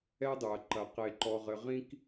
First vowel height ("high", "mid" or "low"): mid